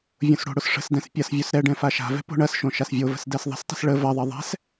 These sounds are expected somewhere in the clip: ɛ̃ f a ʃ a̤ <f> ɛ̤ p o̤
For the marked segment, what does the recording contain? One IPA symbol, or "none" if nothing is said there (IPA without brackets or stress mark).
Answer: v